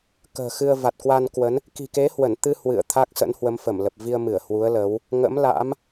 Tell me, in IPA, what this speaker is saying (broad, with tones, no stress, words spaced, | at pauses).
kə̤ː˨˩xɨ˧ə̯ va˨˩t̚kwa˧nkwə˨˦n | ki̤˨˩ke˨˦hwə˧˩nt̪ɨ˧ hwɨ̰˧˨ə̯ t̪ʰa˦˥k̚sə̰˧˥nhwə˨˦mfə˧˩m lə˨˩p̚vi˧ə̯ mɨ˧˩ə̯hwu˨˦ə̯lə˨˦w | ŋə̰˧˥mla̰˧˥m